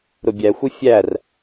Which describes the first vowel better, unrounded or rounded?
rounded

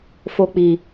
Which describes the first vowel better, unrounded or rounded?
rounded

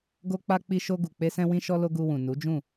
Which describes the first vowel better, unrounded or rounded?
rounded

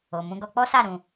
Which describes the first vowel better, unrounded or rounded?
rounded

